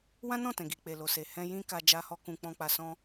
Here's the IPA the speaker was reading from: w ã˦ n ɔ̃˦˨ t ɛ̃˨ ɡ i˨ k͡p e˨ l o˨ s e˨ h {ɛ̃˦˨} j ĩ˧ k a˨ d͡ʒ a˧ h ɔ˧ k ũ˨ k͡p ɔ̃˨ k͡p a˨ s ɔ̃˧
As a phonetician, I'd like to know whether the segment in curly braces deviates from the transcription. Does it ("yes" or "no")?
yes